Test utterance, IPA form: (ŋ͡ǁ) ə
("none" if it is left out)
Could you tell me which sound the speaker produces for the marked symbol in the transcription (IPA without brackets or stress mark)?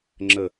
ŋ͡ǁ